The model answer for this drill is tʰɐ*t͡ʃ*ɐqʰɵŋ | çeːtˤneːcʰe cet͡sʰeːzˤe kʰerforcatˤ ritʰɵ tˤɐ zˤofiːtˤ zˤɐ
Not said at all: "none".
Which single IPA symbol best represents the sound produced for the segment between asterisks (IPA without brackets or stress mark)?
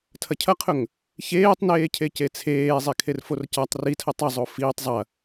cʰ